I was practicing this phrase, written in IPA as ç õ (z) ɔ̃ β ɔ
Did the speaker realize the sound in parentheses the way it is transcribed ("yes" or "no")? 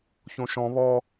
no